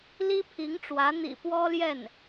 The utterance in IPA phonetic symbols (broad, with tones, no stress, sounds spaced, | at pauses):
l i˥ pʰ i˧˥ ŋ ʈ͡ʂ w ä˧˥ n̪ ḭ˨˩ p w ɔ˥ l j ɛ˥˩ n